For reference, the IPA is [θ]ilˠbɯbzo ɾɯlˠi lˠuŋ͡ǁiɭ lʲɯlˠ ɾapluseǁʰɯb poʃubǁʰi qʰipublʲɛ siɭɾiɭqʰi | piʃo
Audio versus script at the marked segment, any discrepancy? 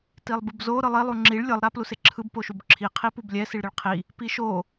yes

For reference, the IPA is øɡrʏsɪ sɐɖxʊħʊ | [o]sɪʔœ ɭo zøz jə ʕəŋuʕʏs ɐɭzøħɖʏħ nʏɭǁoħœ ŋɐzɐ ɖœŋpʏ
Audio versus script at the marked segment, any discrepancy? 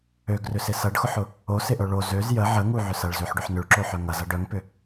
no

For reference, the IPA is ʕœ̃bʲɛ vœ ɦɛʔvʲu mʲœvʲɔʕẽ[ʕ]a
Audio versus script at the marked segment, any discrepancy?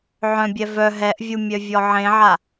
no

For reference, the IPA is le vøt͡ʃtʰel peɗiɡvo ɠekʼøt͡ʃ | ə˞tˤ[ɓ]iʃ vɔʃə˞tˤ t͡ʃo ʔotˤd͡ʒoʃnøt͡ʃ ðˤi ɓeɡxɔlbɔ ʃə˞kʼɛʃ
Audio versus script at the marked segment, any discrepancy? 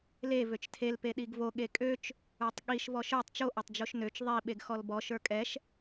yes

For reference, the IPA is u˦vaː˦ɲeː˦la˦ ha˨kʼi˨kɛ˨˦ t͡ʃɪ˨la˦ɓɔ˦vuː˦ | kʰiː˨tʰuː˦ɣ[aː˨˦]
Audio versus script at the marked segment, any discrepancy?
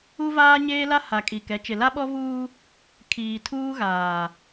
yes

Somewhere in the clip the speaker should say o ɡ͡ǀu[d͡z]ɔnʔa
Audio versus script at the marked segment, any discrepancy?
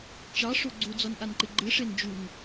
no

